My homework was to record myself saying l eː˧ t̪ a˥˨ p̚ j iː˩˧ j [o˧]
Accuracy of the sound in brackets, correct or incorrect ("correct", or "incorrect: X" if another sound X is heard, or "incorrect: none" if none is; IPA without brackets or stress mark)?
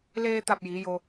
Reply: correct